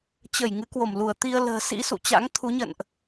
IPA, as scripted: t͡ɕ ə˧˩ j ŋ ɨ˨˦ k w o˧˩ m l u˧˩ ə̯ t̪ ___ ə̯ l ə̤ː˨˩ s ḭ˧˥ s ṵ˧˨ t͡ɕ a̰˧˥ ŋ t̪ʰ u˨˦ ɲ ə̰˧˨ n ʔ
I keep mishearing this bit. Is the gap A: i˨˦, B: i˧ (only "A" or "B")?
B